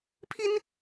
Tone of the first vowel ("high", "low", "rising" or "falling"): high